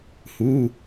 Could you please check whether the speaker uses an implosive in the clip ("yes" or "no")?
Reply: no